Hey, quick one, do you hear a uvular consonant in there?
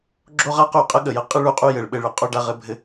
yes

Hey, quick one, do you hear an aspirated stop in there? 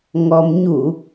no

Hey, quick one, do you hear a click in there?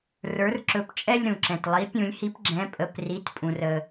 yes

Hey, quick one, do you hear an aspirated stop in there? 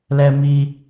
no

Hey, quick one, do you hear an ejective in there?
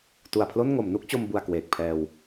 no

